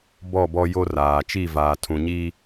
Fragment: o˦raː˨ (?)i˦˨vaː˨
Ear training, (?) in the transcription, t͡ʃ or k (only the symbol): t͡ʃ